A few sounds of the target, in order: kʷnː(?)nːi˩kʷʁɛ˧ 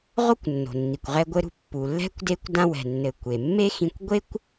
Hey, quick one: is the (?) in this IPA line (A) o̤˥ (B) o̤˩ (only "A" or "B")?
B